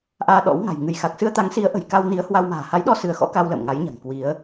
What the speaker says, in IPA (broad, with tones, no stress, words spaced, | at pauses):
ʔaː˧ɗɔ̰˧˥wŋa̤˨˩j ŋɨ˧˩jxa˨˩k̚ sɨ˧ə̯t̪a˨˦ŋsi˨˦ə̯ ʔə̤˨˩jka˧wni˨˦ə̯ hwa˧wma̤ː˨˩ ha˨˦jɗɔ˧ sɨ˨˦ə̯xɔ̰˧˥ka˧w lə̰ː˧˨mŋa˨˦jɲa̤˨˩ŋ kwi˨˦ə̯